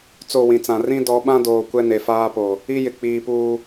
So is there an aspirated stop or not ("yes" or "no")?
no